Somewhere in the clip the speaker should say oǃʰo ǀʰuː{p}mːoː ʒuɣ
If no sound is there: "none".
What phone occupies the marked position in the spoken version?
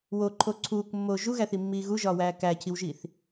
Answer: k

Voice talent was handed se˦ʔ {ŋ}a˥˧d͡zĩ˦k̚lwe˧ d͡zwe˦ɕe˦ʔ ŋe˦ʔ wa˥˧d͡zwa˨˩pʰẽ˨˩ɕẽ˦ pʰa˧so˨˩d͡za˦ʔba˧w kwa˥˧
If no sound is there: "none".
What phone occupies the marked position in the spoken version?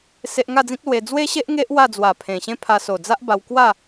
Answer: ŋ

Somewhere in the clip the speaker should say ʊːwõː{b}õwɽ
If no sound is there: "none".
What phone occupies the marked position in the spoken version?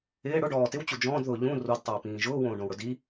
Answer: ɖ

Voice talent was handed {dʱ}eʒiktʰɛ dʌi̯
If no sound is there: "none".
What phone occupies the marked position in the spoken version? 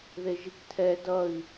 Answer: ð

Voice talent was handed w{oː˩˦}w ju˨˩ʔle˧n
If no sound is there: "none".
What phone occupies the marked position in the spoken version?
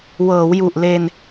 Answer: ɤː˩˦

